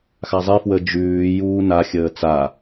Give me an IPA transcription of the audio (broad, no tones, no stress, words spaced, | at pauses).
xazˤi fwəd͡ʒʉː juːna xʲəːt͡sa